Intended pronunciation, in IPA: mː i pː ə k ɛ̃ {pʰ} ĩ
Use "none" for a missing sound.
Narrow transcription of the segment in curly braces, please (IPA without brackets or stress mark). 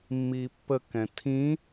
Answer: tʰ